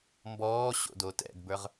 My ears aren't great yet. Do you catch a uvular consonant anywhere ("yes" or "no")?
yes